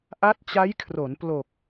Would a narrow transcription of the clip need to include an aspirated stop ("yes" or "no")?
yes